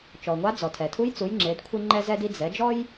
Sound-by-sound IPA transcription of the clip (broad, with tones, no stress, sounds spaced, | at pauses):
t͡ʃ ɔ˩ ŋʷ a˧˥ d͡z ɔ˩ tʰ ɛ˩ tʰ u˧˥ j t͡s u˩˧ j ŋ͡ǁ e˩˧ d kʷʰ i˧ ŋ͡ǃ ɛ˧ z ɛ˧ d i˧ d͡z ɛ˩˧ d͡ʒ ɔ˥ j